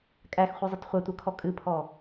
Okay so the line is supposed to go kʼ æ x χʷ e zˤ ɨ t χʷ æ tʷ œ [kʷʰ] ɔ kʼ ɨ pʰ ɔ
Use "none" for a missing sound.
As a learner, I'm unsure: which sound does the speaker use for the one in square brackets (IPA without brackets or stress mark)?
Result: kʰ